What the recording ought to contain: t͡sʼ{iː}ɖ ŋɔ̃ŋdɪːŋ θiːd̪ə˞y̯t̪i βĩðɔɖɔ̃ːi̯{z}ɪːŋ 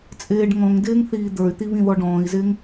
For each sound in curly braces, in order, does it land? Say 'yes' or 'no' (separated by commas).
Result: no, yes